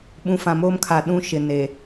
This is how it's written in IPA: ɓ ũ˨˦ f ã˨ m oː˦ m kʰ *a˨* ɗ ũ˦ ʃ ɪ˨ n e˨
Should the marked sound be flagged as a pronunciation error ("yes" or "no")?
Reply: no